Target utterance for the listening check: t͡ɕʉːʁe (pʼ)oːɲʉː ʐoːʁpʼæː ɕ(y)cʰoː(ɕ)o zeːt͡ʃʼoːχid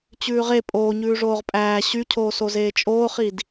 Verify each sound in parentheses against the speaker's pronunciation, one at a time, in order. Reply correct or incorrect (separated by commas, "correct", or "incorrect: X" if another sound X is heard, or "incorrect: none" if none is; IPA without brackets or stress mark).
correct, correct, incorrect: s